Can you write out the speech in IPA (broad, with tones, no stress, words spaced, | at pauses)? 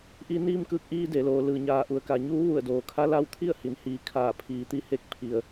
ʔi˧niː˧mkɯː˧˩k̚ʔiː˧ de˩˧loː˩˧ lɯː˩ɲaː˩ʔu˩˧ə̯ka˩ ɲuː˧˥ʋu˧˩ə̯doː˩kʰa˧˥ la˧wt̪ʰi˥˨ə̯ hi˩˧nhiː˩ kʰaː˧˩pʰiː˩˧t̪i˧˥he˥˨k̚ pʰi˩ə̯